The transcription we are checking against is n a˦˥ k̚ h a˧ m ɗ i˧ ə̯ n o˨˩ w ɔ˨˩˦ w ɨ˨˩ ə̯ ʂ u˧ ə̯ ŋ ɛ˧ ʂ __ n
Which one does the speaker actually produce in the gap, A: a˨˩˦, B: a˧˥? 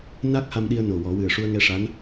B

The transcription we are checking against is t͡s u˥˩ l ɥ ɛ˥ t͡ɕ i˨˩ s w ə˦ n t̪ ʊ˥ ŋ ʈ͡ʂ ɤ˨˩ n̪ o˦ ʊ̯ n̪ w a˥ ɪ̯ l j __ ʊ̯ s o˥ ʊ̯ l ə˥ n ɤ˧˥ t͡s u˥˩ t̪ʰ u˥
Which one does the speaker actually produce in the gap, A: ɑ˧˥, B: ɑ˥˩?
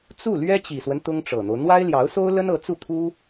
A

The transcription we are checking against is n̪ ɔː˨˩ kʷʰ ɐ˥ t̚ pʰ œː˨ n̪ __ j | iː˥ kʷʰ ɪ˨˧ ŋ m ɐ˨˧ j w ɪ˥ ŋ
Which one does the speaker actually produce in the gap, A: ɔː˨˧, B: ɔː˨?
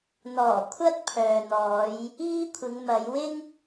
A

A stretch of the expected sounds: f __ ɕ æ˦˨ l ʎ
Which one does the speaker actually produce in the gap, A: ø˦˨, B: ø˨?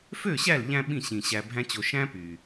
A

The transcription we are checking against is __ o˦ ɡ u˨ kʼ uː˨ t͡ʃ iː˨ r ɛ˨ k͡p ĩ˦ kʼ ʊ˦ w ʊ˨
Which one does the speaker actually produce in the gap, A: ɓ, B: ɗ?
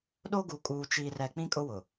B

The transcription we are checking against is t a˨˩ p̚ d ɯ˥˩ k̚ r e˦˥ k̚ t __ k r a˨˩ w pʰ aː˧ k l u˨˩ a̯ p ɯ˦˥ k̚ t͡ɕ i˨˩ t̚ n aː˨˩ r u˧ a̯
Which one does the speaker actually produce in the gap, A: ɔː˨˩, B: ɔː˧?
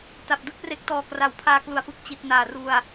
A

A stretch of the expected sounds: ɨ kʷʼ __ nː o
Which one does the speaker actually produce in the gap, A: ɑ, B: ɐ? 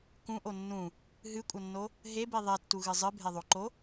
B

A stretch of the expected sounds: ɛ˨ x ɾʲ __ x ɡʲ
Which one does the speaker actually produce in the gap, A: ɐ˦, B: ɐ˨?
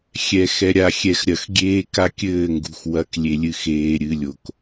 B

